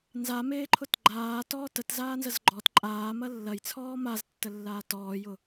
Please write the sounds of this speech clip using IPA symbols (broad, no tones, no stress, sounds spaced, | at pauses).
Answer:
n z a m eː ǃʰ ʊ t ɡ͡ǃ aː t ɔː t ə t z aː n z ə z ɡ͡ǃ ɔ t ǃʼ aː m ɐ lː ɐ j t͡sʰ ɔː m a z tː ə lː aː t ɔː j ʊ